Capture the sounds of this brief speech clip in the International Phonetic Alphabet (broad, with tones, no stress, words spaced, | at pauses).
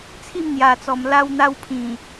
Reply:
t͡sʰi˥˧mn̪ja˨˩t͡sɔ˨˩m la˧wn̪a˧wpʰĩ˨˩